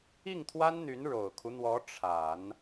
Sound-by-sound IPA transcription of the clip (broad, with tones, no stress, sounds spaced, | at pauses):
i˥˩ ŋ t̪ʰ w a˥ n n̪ y˧˥ n ɻ o˨˩ ʊ̯ kʰ u˦ n̪ w ɔ˧˥ ʈ͡ʂʰ a˨˩˦ n